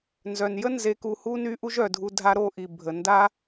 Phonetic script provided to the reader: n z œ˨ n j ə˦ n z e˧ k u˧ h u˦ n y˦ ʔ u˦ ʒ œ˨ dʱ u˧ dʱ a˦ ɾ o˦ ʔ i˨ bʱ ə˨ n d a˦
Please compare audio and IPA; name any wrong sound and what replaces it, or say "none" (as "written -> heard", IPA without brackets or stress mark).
none